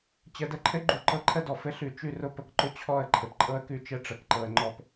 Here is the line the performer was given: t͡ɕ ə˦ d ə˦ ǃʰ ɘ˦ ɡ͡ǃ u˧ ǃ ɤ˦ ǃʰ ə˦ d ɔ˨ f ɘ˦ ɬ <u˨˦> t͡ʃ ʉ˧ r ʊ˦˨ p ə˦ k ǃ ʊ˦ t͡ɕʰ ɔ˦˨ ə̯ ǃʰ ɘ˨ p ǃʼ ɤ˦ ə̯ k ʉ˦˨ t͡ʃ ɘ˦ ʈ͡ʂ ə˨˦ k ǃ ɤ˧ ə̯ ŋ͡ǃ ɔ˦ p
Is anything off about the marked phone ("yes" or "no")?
yes